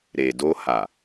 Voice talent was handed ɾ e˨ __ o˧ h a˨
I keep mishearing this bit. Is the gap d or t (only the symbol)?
d